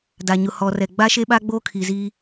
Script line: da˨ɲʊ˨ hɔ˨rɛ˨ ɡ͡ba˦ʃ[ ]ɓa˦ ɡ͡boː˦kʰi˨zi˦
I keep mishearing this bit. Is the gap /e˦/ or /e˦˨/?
e˦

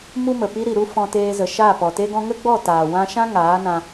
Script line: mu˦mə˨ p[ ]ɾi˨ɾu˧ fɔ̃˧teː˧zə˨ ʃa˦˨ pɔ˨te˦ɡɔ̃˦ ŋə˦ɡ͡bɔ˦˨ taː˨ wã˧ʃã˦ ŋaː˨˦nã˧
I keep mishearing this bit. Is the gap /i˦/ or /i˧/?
i˧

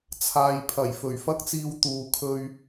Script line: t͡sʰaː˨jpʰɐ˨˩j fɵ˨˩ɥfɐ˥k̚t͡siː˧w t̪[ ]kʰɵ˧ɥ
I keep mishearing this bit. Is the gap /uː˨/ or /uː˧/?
uː˨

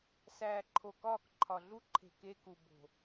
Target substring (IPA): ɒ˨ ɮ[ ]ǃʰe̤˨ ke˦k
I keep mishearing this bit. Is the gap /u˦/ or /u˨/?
u˦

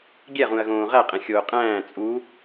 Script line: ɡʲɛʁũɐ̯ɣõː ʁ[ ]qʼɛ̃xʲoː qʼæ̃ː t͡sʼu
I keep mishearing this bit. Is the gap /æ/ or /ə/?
æ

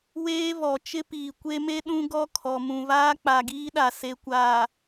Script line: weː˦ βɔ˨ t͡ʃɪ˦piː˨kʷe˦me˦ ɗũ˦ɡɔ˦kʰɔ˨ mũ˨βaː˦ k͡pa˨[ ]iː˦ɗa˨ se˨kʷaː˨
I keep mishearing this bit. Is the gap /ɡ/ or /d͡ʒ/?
ɡ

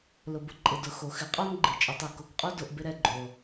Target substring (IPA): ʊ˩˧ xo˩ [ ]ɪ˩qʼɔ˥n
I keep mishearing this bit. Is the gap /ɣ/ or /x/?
x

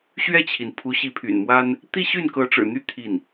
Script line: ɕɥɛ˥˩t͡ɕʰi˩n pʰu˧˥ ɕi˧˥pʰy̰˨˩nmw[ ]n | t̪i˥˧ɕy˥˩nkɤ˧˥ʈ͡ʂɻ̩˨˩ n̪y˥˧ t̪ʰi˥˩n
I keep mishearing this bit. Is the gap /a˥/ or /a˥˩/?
a˥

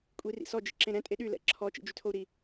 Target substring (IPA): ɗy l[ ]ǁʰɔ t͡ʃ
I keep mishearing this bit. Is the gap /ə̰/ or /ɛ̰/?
ɛ̰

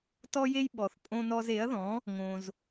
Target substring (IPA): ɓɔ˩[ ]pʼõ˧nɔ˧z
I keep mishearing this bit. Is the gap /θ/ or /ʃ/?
θ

